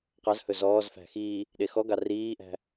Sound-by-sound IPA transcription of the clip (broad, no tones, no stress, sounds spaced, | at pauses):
q ɑ z h ɵ z ɔː z f æ̤ x iː | ɗ e x ɔ ɡ ɑ r iː ʔ æ̤